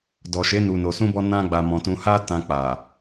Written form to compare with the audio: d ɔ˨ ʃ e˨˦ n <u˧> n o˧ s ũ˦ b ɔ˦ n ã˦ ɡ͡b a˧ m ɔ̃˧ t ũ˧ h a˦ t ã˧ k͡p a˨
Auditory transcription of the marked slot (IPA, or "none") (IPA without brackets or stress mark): u˧